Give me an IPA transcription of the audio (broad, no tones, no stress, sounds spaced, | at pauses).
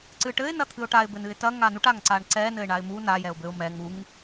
ǀ ɨ ʈ ɘ ɪ̯ n ɐ t̪ʰ ɨ ʊ̯ ʈ a ɪ̯ b ɘ n ɨ ɪ̯ t ɐ ŋ a n u ʈ a ŋ ǀ a ɳ ǀ ɛ n ɘ ɪ̯ ɳ a ɪ̯ m u n a j ɛ ʊ̯ b ɘ ʊ̯ m ɛ ŋ u ŋ